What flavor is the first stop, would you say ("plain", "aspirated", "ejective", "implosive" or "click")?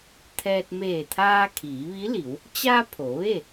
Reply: aspirated